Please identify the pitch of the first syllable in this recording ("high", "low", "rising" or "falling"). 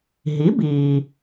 rising